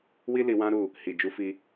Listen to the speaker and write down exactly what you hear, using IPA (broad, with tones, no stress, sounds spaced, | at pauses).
w i˦ l i˧ w ã˦ ɾ u˦˨ | h i˨ d͡ʒ u˨˦ f i˧